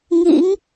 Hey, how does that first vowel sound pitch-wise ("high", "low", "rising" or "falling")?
rising